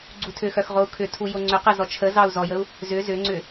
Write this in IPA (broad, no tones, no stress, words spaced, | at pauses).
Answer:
ɡ͡ǀutʰʏxœx ʁou̯kʰʏtʰu joŋ͡ǀʏqə zɔt͡ʃʰəzɑu̯ zɔjəu̯ | zʏ zʏŋ͡ǀʏ